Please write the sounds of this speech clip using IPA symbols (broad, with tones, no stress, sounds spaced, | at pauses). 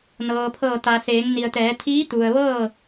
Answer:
n ɤː˩ pʰ ɤː˧˩ t̪ a˩ s eː˩˧ ŋ n i˩ ə̯ t̪ ɛː˩˧ t̪ʰ iː˧˥ t̪ u˩ ə̯ ʋ ɤː˥˨